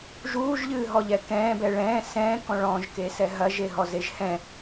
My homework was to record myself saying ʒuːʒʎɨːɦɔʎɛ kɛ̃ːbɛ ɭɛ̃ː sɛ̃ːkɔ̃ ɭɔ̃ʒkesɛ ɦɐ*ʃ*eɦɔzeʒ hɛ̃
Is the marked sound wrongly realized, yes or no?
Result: yes